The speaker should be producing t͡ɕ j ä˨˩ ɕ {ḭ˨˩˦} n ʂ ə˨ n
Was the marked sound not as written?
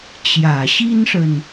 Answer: yes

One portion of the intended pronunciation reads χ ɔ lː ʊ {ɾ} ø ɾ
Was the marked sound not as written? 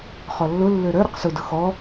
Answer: yes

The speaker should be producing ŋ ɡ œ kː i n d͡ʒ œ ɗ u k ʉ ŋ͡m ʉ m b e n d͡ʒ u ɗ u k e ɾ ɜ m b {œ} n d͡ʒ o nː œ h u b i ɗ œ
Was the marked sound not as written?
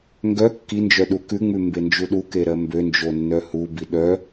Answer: yes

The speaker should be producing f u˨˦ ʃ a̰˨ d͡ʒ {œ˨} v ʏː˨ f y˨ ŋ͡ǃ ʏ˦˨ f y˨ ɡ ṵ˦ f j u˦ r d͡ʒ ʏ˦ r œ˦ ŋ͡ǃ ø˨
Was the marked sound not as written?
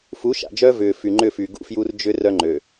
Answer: yes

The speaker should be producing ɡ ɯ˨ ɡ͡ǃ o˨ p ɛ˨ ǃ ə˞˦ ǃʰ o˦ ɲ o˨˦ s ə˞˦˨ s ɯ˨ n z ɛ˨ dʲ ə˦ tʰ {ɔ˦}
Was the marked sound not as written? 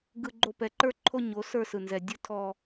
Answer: no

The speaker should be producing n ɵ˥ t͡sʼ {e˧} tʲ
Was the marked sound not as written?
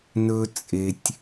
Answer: no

